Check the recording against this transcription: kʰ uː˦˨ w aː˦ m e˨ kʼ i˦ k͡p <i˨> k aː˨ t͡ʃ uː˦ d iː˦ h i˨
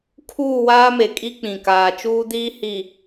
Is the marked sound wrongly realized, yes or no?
yes